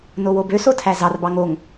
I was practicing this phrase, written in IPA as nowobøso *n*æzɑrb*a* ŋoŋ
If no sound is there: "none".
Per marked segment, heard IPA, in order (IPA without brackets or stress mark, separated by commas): tʰ, ɑ